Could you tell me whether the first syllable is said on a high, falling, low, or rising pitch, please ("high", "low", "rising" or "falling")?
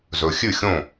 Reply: low